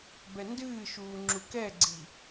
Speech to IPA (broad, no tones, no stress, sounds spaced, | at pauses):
b ɛ n d ɨː ʃ uː ŋ͡ǁ u k ɛ ɡ͡ǀ i